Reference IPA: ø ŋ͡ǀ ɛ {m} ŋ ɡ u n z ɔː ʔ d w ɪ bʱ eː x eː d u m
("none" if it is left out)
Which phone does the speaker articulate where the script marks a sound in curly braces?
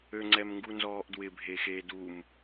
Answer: m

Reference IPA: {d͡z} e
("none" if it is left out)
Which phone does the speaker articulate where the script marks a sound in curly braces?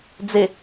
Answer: d͡z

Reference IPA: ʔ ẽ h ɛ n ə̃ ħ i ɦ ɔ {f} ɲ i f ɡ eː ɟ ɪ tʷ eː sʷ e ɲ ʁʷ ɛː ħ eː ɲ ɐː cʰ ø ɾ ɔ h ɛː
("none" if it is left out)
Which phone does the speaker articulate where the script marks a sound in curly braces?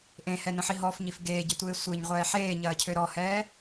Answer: f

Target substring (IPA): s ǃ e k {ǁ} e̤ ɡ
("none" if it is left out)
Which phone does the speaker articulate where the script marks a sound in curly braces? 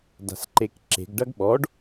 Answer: ǁ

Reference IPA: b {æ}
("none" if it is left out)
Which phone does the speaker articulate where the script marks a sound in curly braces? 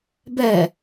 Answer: ɛ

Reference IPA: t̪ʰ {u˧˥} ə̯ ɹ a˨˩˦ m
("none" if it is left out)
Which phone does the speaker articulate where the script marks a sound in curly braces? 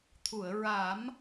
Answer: u˨˩˨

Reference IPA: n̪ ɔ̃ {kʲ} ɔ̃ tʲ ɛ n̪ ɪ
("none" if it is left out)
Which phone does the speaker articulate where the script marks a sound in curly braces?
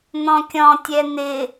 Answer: kʲ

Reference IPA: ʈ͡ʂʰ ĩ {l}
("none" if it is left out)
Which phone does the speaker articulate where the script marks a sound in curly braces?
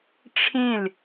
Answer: l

